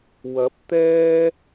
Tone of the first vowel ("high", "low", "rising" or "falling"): rising